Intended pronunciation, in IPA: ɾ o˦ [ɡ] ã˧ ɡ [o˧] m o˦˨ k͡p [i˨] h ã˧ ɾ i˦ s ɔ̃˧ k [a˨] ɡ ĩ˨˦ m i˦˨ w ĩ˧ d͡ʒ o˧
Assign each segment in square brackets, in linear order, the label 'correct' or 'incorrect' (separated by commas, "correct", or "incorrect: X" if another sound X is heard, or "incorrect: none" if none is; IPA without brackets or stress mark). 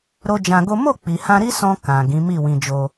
incorrect: d͡ʒ, incorrect: o˦, correct, incorrect: ã˨